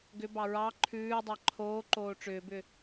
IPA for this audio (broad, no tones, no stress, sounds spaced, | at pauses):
ɡ ʏ b ɑ ɹ ɑ ǃʰ ʉː dˤ ɑ ǃʰ oː ǃ oː ʈ͡ʂ ʏː b ʏ